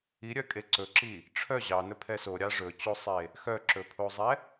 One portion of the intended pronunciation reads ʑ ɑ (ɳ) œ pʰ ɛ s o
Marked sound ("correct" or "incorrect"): incorrect